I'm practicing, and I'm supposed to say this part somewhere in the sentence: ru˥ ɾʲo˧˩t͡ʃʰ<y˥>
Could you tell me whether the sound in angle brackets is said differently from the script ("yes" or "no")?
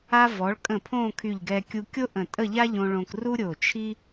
yes